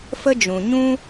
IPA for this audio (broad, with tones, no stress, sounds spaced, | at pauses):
f ə˧ d͡ʒ ũ˨ ɲ ũ˦